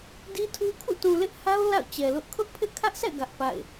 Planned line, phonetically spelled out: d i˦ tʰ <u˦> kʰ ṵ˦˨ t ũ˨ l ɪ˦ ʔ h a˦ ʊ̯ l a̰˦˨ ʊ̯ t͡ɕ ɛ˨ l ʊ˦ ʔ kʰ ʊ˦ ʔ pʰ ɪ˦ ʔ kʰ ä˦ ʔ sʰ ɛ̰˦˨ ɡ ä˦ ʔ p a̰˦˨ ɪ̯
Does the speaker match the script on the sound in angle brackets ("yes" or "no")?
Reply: yes